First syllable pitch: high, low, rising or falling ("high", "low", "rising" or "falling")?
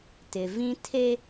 low